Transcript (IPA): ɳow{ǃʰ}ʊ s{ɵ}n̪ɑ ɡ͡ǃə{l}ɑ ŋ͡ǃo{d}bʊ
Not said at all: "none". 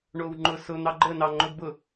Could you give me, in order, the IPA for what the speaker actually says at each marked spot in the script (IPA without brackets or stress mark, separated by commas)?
ŋ͡ǃ, ʊ, n, d